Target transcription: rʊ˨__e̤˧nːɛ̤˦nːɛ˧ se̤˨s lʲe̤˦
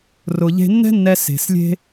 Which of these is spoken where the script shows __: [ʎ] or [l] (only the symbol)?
ʎ